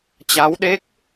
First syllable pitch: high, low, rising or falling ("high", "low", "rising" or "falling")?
rising